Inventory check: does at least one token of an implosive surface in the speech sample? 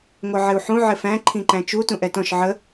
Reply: no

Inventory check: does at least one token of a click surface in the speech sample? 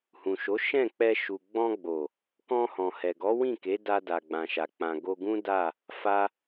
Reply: no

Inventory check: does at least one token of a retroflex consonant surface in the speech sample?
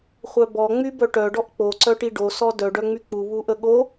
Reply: yes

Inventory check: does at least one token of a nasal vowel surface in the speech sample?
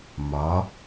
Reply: no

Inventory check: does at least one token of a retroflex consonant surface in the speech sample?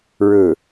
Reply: yes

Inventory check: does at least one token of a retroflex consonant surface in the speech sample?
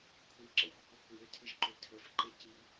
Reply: no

